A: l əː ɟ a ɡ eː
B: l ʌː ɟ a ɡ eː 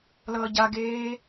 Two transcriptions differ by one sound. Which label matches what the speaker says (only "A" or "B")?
B